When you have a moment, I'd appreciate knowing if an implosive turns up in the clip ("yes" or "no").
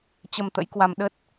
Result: yes